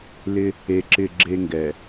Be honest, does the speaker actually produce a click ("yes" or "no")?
yes